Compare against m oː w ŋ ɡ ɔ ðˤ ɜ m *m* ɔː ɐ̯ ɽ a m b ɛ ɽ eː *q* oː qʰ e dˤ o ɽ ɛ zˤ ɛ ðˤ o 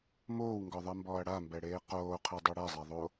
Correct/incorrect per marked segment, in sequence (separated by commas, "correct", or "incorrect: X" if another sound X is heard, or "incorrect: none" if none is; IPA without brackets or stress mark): incorrect: b, correct